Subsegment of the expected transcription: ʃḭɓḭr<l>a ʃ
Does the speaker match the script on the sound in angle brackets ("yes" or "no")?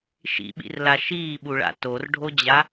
yes